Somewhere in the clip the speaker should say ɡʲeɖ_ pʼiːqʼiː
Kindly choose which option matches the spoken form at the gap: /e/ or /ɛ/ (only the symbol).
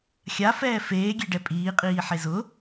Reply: ɛ